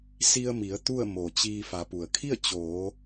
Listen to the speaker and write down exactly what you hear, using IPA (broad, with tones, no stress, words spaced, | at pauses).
si˧ə̯mi˩˧ə̯ t̪u˥˨ə̯ mo˩ t͡ɕiː˧ fa˩˧pu˩ə̯kʰi˥˨ə̯ t͡ɕoː˩˧